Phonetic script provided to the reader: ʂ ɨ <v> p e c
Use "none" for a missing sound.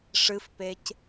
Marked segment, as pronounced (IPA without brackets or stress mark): f